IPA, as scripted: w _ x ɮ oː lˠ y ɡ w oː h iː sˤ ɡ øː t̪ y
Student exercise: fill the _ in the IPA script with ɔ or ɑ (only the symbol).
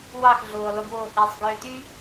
ɑ